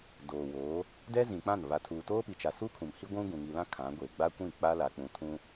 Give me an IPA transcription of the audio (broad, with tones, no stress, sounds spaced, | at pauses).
d oː˨ w oː˨˦ | d ɛ˦ z ĩ˨ k͡p ã˦˨ n β a˨ tʰ uː˨ t oː˦ p i˨ t͡ʃ a˨ s u˦ kʰ ũ˨ m h i˦ ɡʷ ũ˦ ɡ ũ˨ ŋ i˨ l ã˦ kʰ ã˨˦ ɡʷ e˨ ɡ͡b a˦ kʷ ĩ˦˨ k͡p a˦ l a˨ k͡p ũ˨ tʰ ũ˦